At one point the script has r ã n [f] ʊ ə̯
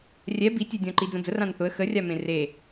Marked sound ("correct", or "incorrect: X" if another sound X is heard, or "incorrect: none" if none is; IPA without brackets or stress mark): incorrect: θ